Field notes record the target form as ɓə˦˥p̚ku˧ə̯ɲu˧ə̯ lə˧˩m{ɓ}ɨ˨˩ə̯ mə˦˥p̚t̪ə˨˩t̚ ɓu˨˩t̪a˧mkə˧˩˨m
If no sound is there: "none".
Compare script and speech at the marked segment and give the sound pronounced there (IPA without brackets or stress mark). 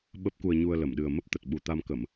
ɗ